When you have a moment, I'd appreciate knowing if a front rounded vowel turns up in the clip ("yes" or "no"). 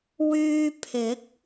yes